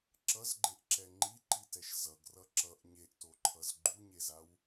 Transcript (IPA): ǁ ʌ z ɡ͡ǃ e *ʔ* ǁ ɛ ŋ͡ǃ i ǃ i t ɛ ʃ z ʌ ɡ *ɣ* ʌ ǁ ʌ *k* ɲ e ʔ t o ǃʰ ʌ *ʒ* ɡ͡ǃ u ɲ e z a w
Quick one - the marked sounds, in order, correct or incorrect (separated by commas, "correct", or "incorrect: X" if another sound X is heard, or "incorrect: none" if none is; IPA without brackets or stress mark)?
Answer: correct, incorrect: r, incorrect: ʔ, incorrect: z